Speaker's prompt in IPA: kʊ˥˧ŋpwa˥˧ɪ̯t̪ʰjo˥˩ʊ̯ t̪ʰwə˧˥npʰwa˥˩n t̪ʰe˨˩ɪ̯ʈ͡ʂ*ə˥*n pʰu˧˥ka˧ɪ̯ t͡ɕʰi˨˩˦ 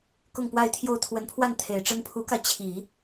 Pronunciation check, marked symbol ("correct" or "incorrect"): correct